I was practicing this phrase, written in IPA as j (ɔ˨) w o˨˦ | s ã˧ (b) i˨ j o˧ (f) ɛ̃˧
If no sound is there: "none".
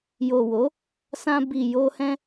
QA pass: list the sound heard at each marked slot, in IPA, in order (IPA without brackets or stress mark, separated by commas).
o˨, b, h